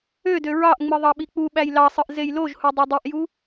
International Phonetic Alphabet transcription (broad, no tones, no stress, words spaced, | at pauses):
ødø ɹɑʔŋ͡mɯ ðˤɑɓik͡puɓæj lɑsˤɯʔ zejloʒhu dˤedˤiʔju